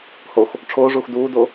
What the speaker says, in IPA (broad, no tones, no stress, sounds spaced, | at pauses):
h o x | ʈ͡ʂʰ oː ʐ uː x d uː d o